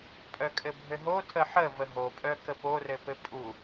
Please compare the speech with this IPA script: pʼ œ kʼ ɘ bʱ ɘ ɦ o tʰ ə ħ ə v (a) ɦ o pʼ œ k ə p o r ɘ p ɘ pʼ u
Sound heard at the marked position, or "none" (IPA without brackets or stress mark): ə